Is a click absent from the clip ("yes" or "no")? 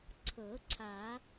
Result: no